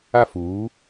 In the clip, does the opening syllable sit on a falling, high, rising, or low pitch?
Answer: high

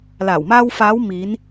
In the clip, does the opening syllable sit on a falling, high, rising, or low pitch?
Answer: low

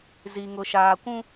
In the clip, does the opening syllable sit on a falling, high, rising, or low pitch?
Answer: low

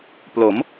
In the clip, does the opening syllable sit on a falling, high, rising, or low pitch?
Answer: rising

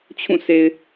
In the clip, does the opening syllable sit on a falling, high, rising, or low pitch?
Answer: falling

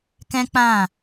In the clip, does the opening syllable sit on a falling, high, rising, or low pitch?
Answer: high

